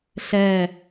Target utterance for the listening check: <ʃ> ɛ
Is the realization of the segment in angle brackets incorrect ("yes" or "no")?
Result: yes